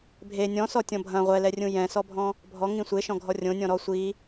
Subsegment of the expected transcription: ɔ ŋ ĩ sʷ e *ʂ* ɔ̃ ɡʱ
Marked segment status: incorrect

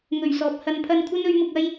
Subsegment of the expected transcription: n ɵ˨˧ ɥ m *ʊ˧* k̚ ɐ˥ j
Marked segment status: correct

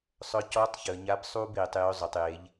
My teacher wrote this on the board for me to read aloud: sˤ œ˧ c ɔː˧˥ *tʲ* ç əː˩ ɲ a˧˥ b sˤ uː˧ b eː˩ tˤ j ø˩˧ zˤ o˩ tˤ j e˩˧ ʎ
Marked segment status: incorrect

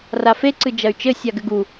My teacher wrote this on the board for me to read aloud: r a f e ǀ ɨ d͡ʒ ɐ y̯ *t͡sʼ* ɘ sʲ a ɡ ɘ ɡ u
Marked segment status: incorrect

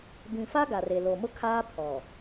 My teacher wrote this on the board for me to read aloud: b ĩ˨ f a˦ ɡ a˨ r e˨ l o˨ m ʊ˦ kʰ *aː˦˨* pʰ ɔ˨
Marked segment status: incorrect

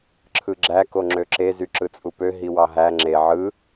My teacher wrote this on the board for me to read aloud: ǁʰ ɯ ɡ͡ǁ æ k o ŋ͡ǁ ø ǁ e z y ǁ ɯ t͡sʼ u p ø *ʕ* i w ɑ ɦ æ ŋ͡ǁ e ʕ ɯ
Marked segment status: incorrect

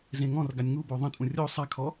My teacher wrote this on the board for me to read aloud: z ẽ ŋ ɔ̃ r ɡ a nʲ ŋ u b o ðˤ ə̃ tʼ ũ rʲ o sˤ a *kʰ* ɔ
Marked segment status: correct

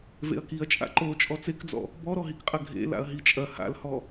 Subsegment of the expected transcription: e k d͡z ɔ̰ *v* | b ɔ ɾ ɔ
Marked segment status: incorrect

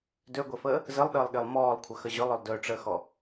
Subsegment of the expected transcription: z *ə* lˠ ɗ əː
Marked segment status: correct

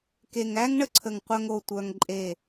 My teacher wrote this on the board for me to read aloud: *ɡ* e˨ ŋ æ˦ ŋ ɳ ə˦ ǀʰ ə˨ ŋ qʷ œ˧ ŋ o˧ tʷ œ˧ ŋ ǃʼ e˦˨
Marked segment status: incorrect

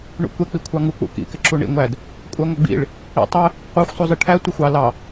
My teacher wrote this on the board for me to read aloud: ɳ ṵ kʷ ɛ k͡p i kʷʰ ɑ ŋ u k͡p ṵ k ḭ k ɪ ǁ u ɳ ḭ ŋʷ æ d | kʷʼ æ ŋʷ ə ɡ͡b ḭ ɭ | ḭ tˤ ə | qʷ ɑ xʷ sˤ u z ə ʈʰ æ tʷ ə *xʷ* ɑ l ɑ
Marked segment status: correct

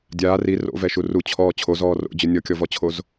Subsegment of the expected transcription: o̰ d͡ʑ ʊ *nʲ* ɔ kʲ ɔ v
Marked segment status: correct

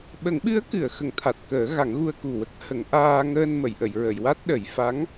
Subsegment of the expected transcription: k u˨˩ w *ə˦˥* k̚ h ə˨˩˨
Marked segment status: correct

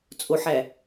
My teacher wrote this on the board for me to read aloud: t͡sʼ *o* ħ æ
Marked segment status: correct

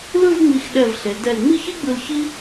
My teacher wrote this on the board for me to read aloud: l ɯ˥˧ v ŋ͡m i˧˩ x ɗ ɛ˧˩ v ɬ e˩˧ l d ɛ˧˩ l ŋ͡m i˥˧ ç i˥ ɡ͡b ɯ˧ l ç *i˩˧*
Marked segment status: incorrect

